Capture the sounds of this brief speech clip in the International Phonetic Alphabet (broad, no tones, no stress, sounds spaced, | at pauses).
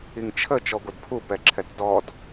i ŋ t͡ʃʰ ə t͡ʃ ɔ ɡʷ ə d pʰ u p ɛ ǁʰ ɛ t d ɔ d